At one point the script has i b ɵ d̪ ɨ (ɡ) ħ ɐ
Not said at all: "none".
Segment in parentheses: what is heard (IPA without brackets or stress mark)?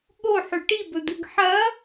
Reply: ɡ